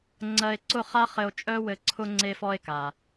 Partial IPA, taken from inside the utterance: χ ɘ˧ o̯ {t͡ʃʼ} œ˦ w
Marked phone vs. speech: correct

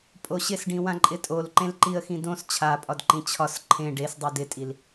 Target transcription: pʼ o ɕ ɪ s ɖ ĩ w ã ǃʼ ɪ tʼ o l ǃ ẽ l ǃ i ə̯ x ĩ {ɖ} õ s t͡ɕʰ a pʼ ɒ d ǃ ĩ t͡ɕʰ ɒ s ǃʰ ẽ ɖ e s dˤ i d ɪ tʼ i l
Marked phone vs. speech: incorrect: d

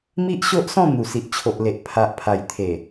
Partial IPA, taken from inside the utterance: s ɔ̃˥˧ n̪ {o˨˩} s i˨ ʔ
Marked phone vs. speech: incorrect: u˨˩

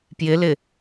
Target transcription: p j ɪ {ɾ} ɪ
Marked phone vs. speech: incorrect: l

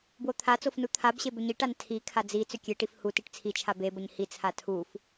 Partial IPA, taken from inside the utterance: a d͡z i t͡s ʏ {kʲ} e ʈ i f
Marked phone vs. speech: correct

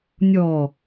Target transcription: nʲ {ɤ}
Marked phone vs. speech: incorrect: ɔ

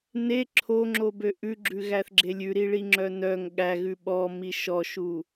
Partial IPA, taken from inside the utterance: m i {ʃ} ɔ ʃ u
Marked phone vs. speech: correct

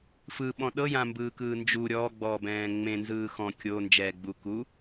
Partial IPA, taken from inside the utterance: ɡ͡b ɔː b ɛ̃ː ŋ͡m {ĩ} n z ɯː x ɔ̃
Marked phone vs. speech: incorrect: ẽ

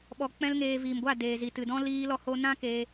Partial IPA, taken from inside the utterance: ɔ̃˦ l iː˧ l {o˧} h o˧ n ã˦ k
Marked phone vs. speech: incorrect: ɔ˧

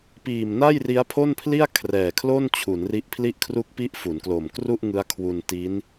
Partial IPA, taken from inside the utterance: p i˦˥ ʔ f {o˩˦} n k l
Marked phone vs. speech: incorrect: u˩˦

